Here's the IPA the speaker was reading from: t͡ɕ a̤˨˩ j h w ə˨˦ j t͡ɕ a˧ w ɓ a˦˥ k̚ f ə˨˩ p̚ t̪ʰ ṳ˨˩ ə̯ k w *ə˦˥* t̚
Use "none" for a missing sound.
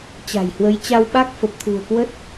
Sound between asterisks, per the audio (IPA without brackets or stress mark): ə˦˥